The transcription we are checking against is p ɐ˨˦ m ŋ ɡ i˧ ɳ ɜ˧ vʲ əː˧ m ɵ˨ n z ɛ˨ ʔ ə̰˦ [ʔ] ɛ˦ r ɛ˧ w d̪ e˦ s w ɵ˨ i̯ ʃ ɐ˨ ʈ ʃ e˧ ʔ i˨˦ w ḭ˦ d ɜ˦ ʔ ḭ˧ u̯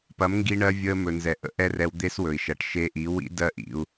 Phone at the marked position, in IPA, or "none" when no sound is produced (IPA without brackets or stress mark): ʔ